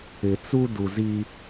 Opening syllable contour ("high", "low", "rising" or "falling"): low